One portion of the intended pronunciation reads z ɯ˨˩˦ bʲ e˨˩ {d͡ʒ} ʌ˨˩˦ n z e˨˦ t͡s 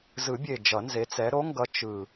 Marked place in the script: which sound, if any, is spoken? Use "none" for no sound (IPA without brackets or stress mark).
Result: d͡ʒ